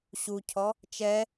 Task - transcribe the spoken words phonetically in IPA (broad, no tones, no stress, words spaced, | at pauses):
ɕucʰɔ | t͡ʃɛ